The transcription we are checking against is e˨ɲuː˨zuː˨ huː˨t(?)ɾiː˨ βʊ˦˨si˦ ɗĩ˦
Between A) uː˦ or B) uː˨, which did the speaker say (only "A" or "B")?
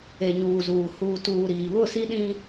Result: B